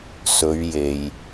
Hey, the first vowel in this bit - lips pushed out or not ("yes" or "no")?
yes